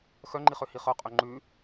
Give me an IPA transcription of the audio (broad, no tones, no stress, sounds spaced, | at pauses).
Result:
x œ ŋ͡ǃ i χ ø h i χ œ qʼ ø ŋ͡ǃ ʉ